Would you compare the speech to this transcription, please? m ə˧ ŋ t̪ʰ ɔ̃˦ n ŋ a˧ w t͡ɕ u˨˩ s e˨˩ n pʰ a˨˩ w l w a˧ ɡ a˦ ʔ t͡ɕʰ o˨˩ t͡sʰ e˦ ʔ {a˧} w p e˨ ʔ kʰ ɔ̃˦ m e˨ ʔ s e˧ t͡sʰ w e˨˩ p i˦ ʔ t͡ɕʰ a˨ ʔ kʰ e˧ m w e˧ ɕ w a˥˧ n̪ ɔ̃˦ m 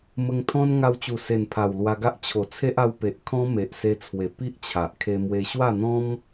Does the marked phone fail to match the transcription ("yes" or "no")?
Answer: no